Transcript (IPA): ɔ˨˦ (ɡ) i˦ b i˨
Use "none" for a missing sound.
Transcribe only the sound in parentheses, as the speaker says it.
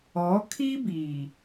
kʰ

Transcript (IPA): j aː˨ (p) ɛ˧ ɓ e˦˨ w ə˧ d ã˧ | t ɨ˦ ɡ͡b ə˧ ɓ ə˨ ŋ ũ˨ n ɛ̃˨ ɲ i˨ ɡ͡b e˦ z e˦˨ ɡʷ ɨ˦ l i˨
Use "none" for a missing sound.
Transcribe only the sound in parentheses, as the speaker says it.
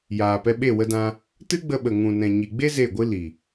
p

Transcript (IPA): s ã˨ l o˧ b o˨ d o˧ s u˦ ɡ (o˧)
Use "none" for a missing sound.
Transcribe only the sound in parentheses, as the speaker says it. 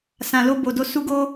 o˦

